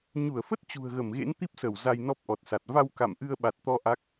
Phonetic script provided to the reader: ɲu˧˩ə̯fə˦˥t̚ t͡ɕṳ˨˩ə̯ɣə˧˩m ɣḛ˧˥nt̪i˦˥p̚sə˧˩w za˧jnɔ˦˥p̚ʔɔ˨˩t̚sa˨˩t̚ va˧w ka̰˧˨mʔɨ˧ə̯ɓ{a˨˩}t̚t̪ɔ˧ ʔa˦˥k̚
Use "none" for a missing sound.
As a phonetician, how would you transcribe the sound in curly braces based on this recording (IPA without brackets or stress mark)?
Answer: a˨˩